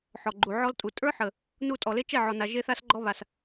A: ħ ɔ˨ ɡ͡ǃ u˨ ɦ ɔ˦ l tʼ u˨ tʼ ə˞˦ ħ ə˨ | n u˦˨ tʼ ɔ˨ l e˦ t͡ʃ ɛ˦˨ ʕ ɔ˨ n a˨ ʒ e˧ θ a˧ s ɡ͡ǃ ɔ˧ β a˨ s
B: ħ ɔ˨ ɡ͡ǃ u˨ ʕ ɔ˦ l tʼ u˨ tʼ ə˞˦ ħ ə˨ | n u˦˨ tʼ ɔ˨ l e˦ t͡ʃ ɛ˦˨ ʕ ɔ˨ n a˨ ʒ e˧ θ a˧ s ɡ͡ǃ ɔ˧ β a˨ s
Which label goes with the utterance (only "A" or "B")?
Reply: B